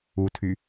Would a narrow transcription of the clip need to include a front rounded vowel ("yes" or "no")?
yes